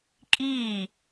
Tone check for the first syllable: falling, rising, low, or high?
falling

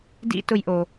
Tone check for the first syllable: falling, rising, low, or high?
high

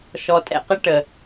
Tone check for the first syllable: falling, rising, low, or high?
low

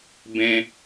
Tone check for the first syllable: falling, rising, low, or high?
high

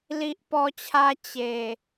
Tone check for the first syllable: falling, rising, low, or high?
high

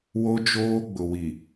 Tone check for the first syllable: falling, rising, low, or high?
high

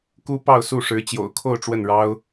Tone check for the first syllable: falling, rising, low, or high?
high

